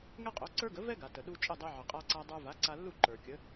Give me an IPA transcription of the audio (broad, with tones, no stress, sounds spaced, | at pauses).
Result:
ŋ ɛ˥ qʼ o˩˥ ǀ ə˞˥ ɡ ə˩˥ v ɛ˥ ɡ a˩ t ə˩ ɗ u˧ t͡ʃʼ ə˥˩ dˤ ɛ˧ ʕ ə˩ qʼ a˧ ǀ a˧ dˤ ə˞˧ v a˩˥ ǀ a˧ lː u˥˩ ǃ ə˞˩ kʲ ə˩˥